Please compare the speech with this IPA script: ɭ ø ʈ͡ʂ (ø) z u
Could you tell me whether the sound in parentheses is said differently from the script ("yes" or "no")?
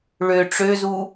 no